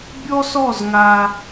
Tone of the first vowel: high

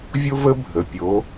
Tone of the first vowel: high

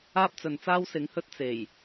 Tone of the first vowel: high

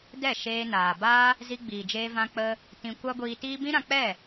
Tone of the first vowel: falling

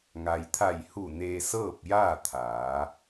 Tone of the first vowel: low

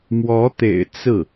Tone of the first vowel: rising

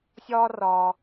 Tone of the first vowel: high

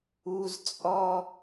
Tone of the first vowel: high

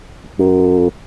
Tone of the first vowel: low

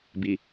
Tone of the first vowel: low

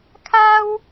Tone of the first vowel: high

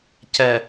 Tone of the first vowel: low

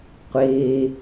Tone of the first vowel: high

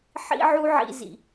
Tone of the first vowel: high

